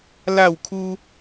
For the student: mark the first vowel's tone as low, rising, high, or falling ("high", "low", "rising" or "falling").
falling